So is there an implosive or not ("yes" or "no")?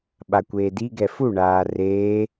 yes